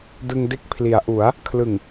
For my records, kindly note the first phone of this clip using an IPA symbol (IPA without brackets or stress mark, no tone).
d